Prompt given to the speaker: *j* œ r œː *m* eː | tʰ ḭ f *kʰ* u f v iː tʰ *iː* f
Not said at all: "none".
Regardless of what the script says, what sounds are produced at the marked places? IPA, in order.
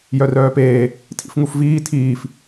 j, p, ŋ, iː

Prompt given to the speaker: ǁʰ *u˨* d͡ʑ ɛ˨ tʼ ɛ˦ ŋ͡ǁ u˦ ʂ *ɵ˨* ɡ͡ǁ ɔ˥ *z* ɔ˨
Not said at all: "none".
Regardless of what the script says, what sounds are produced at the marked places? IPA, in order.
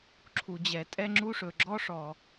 u˨, ɵ˨, ʂ

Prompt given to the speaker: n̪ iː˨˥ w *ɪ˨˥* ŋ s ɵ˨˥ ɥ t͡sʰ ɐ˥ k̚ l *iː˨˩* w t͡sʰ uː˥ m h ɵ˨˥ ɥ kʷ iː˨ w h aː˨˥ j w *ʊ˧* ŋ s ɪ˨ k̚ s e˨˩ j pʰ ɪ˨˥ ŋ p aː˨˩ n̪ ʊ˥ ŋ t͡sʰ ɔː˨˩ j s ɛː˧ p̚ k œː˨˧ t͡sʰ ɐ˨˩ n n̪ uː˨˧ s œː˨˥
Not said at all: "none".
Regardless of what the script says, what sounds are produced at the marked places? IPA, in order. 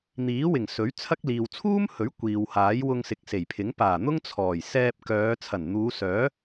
ɪ˨˩, iː˨, ʊ˧

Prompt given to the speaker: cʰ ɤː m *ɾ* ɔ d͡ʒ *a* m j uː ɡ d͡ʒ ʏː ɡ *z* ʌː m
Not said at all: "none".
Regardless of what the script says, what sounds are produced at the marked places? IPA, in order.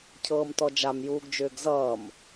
t, a, z

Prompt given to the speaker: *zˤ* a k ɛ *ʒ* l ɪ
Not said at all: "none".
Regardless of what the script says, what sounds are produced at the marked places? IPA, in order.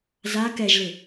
z, ʒ

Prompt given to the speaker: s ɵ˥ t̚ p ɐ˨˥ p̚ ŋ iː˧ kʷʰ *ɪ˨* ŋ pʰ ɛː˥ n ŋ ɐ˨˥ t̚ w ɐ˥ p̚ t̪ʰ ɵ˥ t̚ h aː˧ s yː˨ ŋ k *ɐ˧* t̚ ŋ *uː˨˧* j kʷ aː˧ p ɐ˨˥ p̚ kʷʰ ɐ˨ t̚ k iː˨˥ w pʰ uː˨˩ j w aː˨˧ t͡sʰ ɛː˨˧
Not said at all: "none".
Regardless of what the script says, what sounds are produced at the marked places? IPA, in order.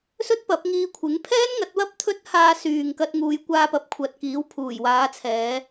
ɪ˨˥, ɐ˧, uː˨˧

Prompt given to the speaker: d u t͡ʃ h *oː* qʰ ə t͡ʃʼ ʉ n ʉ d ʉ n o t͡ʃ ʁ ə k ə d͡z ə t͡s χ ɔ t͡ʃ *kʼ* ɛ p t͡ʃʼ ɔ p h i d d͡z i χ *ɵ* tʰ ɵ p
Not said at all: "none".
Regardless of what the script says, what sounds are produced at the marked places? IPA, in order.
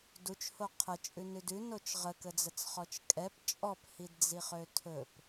o, kʼ, ø

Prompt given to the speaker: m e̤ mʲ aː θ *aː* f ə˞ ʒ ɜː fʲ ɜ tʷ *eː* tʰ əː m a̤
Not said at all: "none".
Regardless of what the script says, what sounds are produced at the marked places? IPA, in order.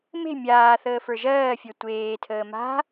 əː, eː

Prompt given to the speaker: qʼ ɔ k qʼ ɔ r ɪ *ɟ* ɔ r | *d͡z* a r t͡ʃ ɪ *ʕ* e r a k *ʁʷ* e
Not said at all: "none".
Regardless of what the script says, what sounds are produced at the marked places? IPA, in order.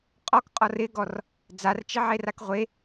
ɡ, d͡z, ʕ, ʁʷ

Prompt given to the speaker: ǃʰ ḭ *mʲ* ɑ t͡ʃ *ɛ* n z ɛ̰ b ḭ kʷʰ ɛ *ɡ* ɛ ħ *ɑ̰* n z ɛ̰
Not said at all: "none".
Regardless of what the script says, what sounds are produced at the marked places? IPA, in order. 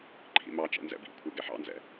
m, ɛ̰, ɡ, ɑ̰

